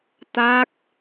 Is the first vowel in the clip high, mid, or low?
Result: low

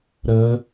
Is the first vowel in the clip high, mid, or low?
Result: mid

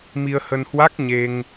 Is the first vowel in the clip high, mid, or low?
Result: high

